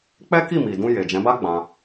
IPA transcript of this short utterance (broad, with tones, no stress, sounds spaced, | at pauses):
k͡p ɛ˦ k i˦˨ m i˨ d ũ˧ j e˨ d͡ʒ ɛ̃˨˦ b a˦ ɡ͡b ã˧